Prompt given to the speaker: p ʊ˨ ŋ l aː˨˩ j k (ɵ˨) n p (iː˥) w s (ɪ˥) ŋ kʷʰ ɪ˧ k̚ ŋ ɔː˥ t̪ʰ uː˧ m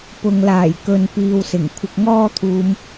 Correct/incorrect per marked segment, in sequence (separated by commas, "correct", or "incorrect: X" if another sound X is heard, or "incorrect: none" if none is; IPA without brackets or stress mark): correct, incorrect: iː˨, incorrect: ɪ˨˩